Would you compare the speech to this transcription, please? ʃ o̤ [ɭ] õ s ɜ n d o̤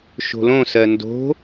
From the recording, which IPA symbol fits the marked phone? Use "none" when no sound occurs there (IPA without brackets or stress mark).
l